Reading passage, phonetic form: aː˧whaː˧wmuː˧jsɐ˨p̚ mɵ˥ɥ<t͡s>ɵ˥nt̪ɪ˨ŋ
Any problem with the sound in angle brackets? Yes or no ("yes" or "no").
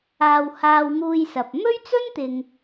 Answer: no